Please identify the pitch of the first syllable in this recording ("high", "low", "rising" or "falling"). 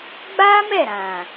high